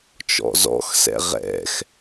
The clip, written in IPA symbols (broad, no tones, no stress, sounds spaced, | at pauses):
t͡ʃ ɔ̰ z ɔ̰ x s ɛ̰ ʁ ɛ̰ x